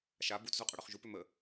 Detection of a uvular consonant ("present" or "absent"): present